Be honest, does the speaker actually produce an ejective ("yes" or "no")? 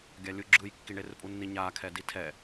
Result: yes